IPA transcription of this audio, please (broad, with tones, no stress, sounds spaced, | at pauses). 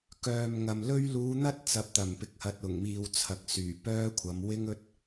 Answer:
k œː˨ m ŋ ɐ˨ m l ɵ˥ ɥ l uː˨˧ n̪ ɐ˥ t̚ t͡s ɐ˨˥ p̚ t̪ ɐ˨˩ m p ɪ˨ k̚ h ɐ˨ t̚ ʊ˨˩ ŋ m iː˨ w t͡sʰ ɐ˨˥ k̚ s yː˨˩ p œː˥ kʷʰ ɐ˨˧ m w ɪ˥ ŋ ɵ˥ t̚